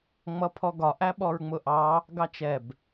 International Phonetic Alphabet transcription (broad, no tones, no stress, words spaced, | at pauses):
ŋ͡mʌpʰɔɡɒ ʔæɓɔɹŋ͡mʊʔɑ | ɡɑt͡ʃɛb